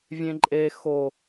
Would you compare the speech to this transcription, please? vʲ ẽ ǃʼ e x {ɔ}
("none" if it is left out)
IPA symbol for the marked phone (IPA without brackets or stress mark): o